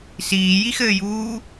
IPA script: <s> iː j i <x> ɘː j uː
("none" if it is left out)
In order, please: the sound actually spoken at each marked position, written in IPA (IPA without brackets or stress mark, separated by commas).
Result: s, x